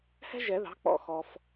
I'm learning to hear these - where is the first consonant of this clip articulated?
throat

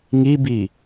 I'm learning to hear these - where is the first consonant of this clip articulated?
velum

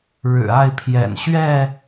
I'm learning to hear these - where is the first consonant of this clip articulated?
retroflex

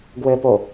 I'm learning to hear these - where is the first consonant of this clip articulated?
velum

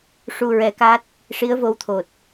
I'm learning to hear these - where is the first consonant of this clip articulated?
retroflex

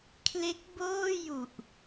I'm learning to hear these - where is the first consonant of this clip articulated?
velum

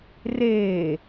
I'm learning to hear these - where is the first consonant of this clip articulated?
tongue tip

